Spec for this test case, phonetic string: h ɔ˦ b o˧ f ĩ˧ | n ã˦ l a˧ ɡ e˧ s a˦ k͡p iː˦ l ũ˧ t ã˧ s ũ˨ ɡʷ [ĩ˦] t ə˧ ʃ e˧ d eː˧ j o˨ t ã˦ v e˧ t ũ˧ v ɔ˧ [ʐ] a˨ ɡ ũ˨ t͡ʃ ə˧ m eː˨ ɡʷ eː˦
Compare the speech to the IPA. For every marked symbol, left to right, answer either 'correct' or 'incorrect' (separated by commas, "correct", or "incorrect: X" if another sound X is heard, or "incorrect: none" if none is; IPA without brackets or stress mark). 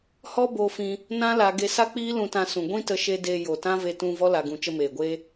correct, incorrect: l